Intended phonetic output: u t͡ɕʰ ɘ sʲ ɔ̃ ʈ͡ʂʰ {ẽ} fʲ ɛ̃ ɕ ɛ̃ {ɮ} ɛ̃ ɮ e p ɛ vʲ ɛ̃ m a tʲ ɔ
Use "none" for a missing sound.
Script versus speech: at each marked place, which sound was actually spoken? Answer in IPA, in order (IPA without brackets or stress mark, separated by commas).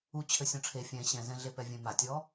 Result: e, z